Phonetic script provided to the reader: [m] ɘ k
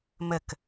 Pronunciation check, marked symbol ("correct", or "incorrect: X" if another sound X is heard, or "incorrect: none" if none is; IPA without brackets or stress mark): correct